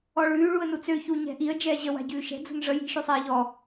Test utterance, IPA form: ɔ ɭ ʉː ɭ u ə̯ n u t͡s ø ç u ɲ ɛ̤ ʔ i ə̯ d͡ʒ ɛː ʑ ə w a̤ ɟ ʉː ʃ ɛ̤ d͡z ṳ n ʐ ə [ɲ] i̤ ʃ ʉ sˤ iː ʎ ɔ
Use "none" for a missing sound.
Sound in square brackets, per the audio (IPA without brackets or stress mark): j